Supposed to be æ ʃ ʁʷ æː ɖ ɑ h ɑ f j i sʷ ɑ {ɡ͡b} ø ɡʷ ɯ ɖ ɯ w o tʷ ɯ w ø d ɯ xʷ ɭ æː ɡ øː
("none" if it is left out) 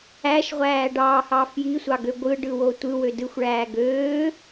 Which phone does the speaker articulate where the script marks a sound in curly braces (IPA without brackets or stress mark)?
ɡ